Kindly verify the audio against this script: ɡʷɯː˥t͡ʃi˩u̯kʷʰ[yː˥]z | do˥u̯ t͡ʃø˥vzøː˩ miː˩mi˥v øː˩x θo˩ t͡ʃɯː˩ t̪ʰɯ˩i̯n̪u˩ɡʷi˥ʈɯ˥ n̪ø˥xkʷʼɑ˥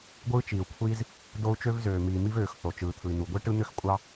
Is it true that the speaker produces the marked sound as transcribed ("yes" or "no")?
no